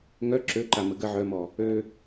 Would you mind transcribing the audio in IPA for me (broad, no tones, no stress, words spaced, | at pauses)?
ŋœ ǁøǃa məɡə ʕœmɔ | ø